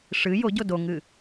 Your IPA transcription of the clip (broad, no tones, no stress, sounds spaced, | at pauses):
ʂ ɨ j o ɟ o d o ŋ ɨ